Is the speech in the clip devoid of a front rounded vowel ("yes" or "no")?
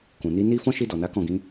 yes